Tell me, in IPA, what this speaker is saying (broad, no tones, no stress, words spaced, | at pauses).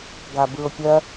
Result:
ɡabɯʊ̯pʲɜ